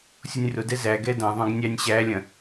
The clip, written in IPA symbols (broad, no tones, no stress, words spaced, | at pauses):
sʲonʲrʊdɛ zæɡɛ dɐ̃ðˤœ̃ɡ nʲænʲɕælʲɐ̃